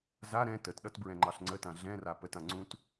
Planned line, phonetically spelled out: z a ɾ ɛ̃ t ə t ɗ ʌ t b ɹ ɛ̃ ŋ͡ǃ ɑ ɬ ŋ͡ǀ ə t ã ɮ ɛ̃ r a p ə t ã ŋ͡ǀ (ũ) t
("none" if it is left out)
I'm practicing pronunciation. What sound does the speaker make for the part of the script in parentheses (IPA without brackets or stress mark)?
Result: ũ